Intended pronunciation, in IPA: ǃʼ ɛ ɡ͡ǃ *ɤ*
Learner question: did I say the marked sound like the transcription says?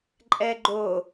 no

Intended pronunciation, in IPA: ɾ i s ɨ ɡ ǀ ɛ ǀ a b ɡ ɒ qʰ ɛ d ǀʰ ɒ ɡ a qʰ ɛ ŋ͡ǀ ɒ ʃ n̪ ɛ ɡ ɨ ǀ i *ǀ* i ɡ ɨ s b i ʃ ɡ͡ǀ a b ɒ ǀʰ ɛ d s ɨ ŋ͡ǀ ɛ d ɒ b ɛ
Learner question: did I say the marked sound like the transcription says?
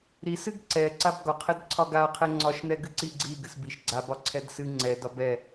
no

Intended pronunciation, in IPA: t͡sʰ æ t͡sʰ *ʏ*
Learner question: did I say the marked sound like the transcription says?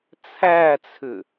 yes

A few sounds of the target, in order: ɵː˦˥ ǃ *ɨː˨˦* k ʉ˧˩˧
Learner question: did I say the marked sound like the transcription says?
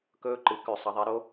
no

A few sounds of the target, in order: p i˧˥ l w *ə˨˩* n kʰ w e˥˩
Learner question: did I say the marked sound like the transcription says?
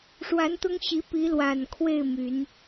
no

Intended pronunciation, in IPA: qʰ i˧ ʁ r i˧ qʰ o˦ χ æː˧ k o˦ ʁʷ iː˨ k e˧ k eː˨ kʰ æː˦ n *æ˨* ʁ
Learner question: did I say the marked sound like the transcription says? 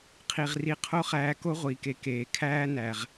yes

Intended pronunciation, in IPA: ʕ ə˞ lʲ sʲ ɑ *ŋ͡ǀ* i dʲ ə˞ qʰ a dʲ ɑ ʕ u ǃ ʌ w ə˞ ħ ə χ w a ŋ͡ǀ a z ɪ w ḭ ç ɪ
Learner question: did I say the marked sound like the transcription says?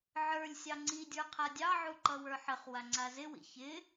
yes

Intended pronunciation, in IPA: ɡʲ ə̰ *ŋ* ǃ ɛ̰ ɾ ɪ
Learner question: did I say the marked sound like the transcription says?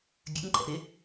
yes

